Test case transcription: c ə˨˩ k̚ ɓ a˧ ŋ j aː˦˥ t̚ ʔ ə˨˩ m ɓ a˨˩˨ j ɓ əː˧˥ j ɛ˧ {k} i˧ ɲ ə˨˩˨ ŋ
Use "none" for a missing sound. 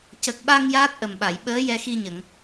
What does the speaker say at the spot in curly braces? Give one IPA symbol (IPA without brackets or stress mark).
x